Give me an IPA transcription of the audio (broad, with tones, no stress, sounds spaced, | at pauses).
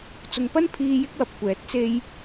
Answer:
t͡s ʊ˨ ŋ p ɐ˥ n pʰ iː˧ j ɪ˥ k̚ w ɐ˨ p̚ kʷ ɛː˨˥ t̚ t͡s e˧ j